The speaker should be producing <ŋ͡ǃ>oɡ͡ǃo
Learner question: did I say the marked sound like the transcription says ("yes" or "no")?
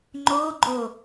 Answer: yes